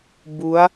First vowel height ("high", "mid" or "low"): high